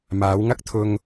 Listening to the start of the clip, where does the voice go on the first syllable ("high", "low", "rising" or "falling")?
rising